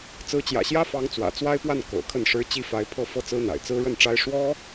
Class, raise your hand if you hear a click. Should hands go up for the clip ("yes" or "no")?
no